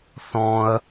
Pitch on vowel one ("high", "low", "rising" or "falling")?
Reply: high